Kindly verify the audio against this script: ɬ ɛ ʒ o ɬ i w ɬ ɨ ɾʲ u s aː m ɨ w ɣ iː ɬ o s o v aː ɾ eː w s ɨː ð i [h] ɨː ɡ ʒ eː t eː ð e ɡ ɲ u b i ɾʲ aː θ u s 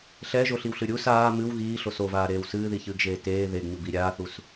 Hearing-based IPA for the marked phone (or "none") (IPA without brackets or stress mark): ç